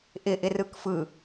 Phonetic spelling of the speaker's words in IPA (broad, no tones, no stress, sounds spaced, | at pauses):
ʔ ɪ ʔ ɪ r ɯ k f ɯ